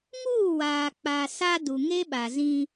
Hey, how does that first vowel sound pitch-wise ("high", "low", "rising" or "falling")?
falling